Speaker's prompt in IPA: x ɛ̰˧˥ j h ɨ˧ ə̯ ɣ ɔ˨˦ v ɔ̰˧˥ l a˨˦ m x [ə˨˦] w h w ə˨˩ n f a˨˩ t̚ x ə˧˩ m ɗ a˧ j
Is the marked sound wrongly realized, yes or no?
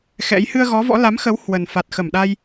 no